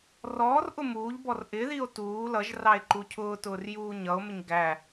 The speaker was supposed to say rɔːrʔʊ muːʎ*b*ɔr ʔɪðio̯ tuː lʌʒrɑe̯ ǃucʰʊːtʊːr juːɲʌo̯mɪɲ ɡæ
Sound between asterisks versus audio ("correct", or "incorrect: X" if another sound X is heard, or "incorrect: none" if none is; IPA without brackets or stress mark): correct